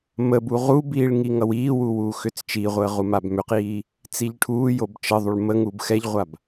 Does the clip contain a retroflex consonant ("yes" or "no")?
yes